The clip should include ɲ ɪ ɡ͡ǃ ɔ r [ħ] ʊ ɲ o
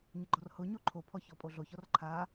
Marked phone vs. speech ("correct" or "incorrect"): incorrect